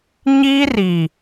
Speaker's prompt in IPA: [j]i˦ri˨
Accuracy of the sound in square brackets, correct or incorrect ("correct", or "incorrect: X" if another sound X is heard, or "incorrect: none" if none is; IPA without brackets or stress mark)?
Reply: incorrect: ɲ